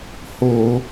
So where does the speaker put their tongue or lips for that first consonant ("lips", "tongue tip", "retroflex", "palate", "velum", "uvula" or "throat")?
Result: throat